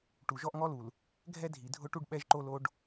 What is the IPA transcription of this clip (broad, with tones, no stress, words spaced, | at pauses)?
ʈu˨ʒɔ˦ʔŋɔ˦lu˨l | ɡʱɛ˦dʱi˨dʱʊ˦ʈu˦ɖ ɓɛ˦ʒǃo˦ lo˦ɖ